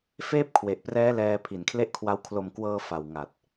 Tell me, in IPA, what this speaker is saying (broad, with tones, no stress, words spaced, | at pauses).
feː˥˩p̚kʰwe˨˩ʔprɛː˦˥ lɛː˧ pʰi˨˩nkʰle˥˩ʔkʰwa˦˥w kʰlo˨˩mkwɤː˧ fa˨˩wŋa˨˩t̚